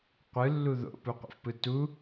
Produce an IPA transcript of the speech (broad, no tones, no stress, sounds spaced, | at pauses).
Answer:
qʷ ɯ lː u ð o̰ p u qʷ ɛ̰ f p ɯ t u